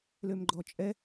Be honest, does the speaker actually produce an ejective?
yes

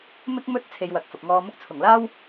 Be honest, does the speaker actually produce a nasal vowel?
no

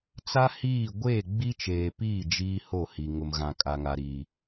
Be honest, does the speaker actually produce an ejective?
yes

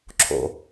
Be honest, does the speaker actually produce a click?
yes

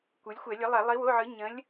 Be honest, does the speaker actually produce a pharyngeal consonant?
yes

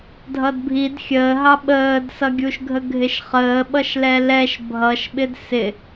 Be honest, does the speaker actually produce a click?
no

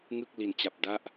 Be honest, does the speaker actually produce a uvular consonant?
no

